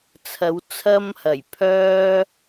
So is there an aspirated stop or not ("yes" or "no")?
yes